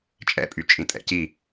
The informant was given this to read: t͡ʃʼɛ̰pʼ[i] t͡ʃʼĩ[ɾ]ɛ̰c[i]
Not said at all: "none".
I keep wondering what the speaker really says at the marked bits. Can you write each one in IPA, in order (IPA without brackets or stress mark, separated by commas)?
y, tʼ, i